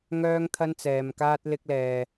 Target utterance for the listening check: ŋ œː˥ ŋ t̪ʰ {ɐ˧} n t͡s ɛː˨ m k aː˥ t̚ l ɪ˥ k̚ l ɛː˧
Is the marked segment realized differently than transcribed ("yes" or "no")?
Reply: yes